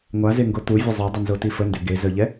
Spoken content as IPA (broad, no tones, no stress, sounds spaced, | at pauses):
ŋʷ a z e ŋ ɡ o t̪ u vʲ ə zˤ œ dˤ ə n z o t i f ə n d ø ɡ e z œ ʎ ɛ